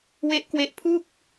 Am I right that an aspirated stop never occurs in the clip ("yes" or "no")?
no